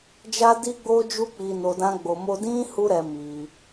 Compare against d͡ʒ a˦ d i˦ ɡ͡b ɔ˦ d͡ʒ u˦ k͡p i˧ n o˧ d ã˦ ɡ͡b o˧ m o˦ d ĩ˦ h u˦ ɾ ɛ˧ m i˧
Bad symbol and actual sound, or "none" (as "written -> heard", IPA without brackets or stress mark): ɔ˦ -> o˦